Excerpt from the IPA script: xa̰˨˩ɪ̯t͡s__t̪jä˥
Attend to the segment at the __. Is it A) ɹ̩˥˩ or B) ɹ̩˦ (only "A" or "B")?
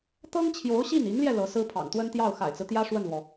B